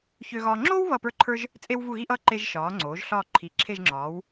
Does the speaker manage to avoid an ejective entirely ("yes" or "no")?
no